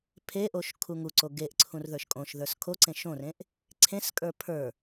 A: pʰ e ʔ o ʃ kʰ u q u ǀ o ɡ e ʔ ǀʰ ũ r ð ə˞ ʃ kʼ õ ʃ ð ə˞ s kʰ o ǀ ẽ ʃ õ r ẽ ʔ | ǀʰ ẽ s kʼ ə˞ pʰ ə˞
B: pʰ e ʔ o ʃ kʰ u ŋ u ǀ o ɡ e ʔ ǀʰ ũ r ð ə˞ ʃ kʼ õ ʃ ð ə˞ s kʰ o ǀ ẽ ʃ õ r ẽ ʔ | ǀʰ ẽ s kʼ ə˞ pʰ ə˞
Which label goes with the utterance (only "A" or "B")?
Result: B